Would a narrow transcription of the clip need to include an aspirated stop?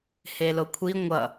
yes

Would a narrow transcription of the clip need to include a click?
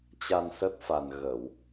no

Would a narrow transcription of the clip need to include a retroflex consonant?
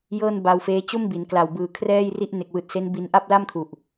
no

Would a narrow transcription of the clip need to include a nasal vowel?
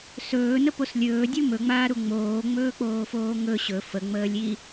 no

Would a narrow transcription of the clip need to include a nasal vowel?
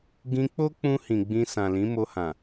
yes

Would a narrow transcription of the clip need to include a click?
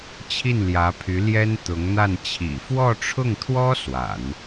no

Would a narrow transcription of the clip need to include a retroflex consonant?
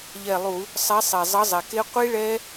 yes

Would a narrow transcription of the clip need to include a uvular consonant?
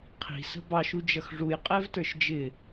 yes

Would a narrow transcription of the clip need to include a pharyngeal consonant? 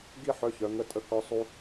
yes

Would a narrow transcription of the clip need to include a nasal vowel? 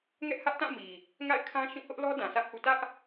yes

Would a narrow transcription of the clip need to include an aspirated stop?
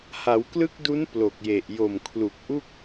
yes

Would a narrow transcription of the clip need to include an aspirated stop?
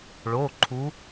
yes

